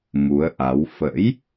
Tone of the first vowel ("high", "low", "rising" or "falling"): rising